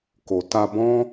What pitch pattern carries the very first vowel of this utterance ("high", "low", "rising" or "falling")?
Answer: low